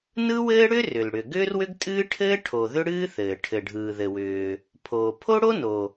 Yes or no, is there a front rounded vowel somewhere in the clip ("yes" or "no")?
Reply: yes